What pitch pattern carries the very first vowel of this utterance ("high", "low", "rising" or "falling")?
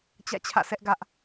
falling